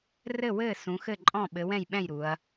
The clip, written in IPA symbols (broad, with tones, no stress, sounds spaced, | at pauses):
r ɘ˥˨ w ɘː˥˨ s ũ˨˦ x ɘ˥˨ ǃʼ ɔ̃˥˨ ɓ ɘ˨˦ w ɛ̃˥˨ j ɓ ɛ̃˥˨ j ɾ u˨˦ ɐ̯